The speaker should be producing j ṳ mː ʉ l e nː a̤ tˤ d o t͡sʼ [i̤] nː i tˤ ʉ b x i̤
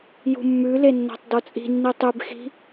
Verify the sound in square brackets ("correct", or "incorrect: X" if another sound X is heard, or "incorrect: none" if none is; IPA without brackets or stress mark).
correct